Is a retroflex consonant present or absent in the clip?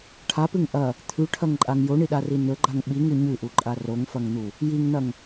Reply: present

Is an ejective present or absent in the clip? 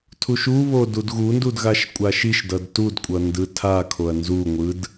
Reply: present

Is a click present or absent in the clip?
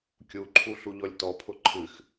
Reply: present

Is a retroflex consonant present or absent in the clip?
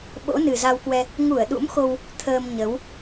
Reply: absent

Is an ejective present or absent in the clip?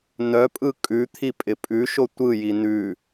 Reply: present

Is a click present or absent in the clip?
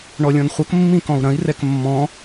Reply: absent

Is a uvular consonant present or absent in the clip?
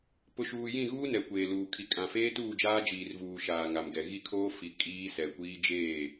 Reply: absent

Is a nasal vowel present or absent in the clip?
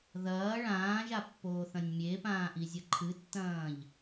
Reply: present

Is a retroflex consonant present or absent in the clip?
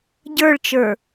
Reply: present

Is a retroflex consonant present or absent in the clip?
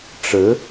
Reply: present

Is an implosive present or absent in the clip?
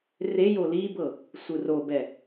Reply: absent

